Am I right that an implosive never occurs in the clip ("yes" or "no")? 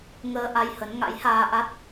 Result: yes